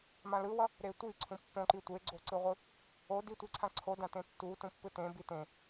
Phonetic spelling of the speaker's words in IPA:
m ã l ɯ w ʌ | ɾ e tʷ i ǀʰ ũ pː õ ǃ i tʷ e ɡ͡ǀ o ǀ ɯ ʁʷ ɯ | o d i tʷ i ǀʰ ã ǀʰ o d ã t ẽ tː u t ũ pː ɯ t ẽ b i t ẽ

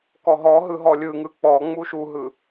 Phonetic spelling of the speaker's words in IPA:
k ɔ ɦ ɔ ɦ ɯ ɦ ɔ lʲ ɯ ŋ ɯ k͡p ɔ ŋ͡m u ʃ u ɦ ɯ

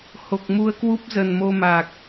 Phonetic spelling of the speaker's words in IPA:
h o˨˩ k̚ m u˧ ə̯ k w u˦˥ p̚ z ə˨˩ n m o˧ m a˨˩ k̚

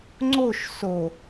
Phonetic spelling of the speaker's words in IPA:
ŋ͡ǀ o ʃ s o

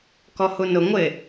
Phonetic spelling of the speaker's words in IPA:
k ɔ h u n ʊ ŋʷ ɪ

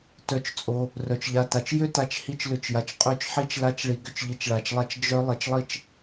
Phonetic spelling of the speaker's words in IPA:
t œ˧ t͡ʃ t͡sʼ o˧ | r œ˨ t͡ʃ ʎ a˧ t a˨ t͡ʃ j ø˦ t a˨ t͡ʃ h i˦˨ t͡ʃ l ʏ˦˨ t͡ʃ j a˨ t͡ʃ qʼ ø˦ t͡ʃ ħ i˦ t͡ʃ l a˦ t͡ʃ ɭ i˧ ɡ ʏ˦ t͡ʃ ʎ i˧ t͡ʃ ɭ a˧ t͡ʃ lˠ a˦ t͡ʃ d͡ʒ œ˦ lˠ i˧ t͡ʃ lˠ i˦ t͡ʃ

